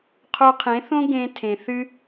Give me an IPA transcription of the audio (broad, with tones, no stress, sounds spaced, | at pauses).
qʰ o˧ qʰ ẽ˨˦ θ õ˦ ɡ ẽ˧ tʰ ẽ˨ θ ɨ˧